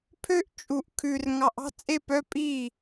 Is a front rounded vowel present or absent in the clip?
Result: present